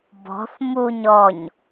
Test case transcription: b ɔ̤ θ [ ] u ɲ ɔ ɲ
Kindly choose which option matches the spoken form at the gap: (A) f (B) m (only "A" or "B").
B